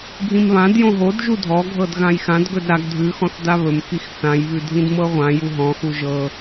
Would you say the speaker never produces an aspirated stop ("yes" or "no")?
yes